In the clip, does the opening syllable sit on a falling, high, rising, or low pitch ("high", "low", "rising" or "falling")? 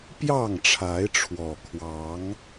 falling